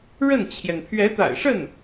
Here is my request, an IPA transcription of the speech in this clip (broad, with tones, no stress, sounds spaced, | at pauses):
ɻ ə˥˩ n t͡ɕʰ j ɛ˩ n pʰ ɥ ɛ˧˥ t̪ a̰˨˩ ɪ̯ ʂ ə˥˩ n